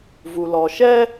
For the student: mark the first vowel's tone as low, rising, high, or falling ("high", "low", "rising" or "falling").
low